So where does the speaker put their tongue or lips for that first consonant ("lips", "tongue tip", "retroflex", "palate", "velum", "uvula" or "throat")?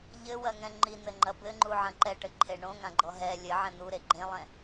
palate